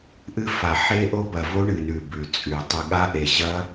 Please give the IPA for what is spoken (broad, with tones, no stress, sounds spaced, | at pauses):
ʔ ɨ˦˥ f a˨˩ ħ e˦˥ ʔ o˦˥ b ɐ˨˩ v o˦˥ ɳ ɨ˨˩ n ʉ˨˩ b ʉ˨˩ t͡sʼ ʉ˨˩ tˤ ɨ˨˩ ɠ a˦˥ ʔ e˨˩ ʑ ɐ˦˥